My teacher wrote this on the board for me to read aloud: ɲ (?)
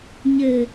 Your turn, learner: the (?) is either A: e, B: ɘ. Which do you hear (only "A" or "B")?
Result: B